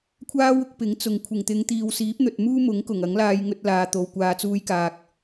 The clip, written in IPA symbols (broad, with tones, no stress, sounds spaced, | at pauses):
kʷʰ aː˥ w ʊ˧ k̚ p ɪ˨˥ ŋ t͡s ʊ˨ ŋ kʷʰ ɪ˨˩ ŋ t̪ ɪ˨˧ ŋ t̪ iː˨ w s iː˨˥ p̚ n̪ ɵ˨ t̚ m uː˥ m ʊ˨˥ ŋ k ʊ˨˩ ŋ ɐ˨˥ ŋ l aː˧ j ŋ ɵ˧ t̚ l aː˨ t̪ o˨ w kʷ aː˨ t͡s uː˧ j k aː˨ k̚